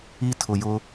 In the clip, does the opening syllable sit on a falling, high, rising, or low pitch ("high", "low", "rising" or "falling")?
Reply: high